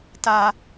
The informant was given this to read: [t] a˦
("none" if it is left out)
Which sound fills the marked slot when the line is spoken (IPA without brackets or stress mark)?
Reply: t